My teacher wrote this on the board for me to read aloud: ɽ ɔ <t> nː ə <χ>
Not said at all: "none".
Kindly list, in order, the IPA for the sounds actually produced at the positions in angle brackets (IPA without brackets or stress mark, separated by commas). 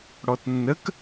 t, k